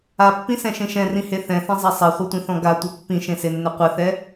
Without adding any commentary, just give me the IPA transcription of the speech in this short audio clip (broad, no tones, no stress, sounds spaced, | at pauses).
a pː ĩ s ɛ̃ ʃ ẽ ʃ ɛ̃ r ĩ h e θ ɛ̃ θ ẽ zˤ a sˤ ɛ χʷ e tʷ ĩ θ ɔ̃ ɡ a tʷ ɘ pː ĩ ʃ ẽ s e nː ɘ qʷ ɘ θ ɛ